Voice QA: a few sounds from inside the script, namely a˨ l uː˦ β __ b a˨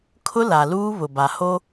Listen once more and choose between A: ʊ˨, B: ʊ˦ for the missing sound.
A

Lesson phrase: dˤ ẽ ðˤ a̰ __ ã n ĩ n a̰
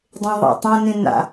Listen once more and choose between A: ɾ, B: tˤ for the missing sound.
B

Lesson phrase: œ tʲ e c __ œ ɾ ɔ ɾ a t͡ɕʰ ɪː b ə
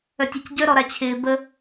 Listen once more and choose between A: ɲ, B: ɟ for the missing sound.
B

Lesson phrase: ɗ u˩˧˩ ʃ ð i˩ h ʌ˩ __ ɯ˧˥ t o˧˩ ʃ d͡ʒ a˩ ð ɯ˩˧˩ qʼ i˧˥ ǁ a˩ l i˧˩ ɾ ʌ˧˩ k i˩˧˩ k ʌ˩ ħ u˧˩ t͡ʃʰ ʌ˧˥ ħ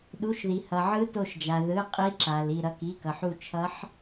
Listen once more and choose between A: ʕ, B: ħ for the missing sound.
A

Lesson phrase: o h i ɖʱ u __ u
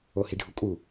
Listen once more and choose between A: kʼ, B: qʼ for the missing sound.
A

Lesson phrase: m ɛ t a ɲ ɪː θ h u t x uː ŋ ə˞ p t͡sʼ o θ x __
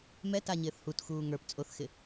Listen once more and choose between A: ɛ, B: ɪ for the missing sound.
B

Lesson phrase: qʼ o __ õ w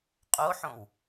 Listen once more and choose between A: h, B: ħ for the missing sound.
B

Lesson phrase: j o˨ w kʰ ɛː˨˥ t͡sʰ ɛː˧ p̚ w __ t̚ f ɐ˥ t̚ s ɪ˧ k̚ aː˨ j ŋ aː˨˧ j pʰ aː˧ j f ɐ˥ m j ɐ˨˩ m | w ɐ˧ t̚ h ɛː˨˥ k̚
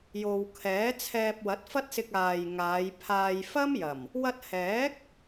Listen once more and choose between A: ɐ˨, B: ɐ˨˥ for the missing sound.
B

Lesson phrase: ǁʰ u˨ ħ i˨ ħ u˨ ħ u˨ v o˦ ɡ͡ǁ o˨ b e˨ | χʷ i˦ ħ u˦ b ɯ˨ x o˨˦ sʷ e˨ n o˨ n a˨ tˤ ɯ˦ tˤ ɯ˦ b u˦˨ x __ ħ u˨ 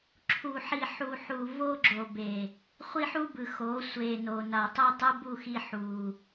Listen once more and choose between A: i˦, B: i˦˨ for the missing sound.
A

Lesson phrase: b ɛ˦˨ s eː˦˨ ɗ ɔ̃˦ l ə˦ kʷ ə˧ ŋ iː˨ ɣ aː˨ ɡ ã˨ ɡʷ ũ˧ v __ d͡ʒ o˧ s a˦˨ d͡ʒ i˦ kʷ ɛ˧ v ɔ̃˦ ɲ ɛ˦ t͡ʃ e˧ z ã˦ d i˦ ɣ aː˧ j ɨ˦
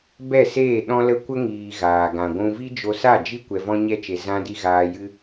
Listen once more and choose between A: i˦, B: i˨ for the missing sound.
A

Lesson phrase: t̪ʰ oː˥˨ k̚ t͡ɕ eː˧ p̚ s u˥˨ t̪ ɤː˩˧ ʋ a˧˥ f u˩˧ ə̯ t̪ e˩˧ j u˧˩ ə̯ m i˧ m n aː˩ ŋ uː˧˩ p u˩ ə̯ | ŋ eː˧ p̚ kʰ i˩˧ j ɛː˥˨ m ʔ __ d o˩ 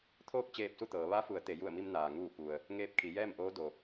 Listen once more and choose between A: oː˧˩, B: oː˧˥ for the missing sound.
B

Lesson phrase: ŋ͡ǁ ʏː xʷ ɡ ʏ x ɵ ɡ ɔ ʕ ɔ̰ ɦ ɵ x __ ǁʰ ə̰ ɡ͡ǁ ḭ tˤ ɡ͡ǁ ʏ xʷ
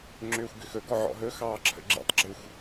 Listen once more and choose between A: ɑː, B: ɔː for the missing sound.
A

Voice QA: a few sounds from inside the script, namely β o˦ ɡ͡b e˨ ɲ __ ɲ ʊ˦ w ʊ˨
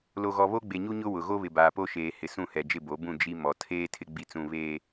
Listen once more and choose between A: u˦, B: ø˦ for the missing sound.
A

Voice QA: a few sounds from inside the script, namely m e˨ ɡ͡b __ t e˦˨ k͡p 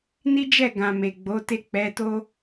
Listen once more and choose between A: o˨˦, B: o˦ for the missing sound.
A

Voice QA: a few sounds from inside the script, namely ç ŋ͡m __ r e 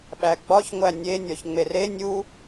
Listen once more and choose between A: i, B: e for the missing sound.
B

